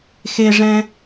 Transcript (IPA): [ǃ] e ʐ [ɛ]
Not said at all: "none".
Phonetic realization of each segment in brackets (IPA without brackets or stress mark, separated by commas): x, ɛ̃